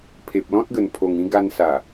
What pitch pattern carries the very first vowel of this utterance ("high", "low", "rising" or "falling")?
low